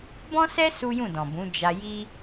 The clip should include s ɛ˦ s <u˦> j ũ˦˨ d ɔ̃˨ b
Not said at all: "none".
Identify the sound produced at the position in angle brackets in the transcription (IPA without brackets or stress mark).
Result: u˦